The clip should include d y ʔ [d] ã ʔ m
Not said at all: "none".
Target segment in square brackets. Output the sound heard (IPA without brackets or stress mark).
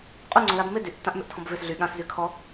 tː